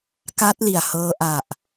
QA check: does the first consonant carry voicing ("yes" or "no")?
no